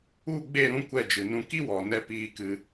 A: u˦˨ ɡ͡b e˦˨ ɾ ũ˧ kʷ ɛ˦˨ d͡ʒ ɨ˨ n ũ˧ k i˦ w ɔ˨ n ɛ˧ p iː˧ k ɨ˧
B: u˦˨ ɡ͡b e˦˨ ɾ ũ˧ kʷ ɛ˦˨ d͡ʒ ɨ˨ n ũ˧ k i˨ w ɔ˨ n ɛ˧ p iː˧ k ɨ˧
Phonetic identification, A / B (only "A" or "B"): A